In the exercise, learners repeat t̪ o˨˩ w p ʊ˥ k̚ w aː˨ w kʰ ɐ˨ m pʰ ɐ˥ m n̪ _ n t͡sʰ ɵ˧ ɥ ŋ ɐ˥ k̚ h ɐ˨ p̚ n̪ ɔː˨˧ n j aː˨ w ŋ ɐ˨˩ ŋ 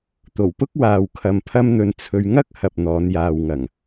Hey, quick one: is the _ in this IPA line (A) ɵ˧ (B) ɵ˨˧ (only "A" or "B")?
A